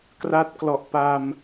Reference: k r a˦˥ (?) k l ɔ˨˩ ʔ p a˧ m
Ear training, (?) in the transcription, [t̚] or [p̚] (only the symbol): t̚